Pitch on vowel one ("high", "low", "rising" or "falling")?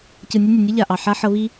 low